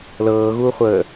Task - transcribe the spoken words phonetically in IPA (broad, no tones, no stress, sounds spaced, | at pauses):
l ɤː ɣ uː χʷ əː